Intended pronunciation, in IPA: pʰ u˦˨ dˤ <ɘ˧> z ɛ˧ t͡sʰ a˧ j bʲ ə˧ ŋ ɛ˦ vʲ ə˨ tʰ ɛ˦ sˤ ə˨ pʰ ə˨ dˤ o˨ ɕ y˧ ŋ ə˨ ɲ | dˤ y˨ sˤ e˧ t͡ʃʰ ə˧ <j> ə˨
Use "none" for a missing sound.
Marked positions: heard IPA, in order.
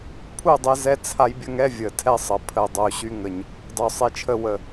e˧, w

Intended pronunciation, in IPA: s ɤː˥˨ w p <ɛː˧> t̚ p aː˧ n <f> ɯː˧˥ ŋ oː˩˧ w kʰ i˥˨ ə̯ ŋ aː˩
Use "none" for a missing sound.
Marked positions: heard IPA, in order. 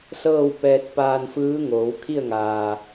ɛː˧, f

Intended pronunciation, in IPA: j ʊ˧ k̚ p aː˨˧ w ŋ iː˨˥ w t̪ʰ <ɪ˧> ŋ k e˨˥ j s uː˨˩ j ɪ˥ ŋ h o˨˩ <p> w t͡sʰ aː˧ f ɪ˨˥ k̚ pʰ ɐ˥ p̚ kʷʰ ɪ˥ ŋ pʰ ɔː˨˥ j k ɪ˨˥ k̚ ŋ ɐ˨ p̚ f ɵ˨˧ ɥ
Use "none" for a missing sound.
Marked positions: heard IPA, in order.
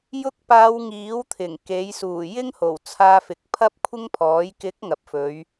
ɪ˨˩, none

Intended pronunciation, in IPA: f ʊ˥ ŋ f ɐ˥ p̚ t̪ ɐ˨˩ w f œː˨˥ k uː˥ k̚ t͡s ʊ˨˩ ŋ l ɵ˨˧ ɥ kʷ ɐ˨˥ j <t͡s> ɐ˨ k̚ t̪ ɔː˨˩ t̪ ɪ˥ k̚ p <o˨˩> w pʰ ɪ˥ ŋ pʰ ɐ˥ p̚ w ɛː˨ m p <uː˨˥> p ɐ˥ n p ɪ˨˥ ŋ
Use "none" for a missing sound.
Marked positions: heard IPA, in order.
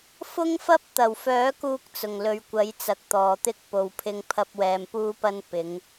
t͡s, o˧, uː˥

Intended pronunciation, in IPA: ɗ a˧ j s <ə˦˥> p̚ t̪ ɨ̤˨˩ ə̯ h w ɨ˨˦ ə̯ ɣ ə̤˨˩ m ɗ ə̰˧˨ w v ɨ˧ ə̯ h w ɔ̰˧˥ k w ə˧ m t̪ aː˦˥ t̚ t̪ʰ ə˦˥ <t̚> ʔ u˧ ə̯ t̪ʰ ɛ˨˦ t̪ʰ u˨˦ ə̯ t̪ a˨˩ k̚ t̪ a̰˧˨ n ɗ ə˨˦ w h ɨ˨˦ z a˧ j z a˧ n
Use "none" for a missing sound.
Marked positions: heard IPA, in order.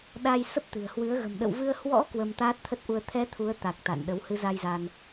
ə˦˥, t̚

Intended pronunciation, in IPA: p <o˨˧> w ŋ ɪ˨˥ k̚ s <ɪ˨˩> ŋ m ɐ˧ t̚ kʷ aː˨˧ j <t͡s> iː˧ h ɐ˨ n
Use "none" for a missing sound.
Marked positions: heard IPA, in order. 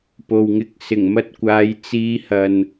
o˨, ɪ˨˩, t͡s

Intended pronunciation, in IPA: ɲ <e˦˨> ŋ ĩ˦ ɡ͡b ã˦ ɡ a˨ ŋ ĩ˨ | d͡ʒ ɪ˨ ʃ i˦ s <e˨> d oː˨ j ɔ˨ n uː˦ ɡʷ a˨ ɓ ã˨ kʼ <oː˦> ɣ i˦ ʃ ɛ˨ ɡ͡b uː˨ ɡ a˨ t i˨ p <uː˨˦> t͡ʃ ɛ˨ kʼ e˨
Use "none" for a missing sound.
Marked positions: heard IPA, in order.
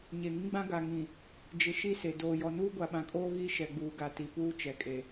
e˨, e˨, oː˦, uː˦

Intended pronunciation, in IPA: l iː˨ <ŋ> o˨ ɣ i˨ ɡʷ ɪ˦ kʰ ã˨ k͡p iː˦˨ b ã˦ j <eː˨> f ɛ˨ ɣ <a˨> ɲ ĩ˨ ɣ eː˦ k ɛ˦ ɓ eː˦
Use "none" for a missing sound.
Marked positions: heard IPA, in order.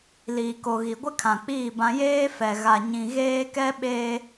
k, eː˦, a˨

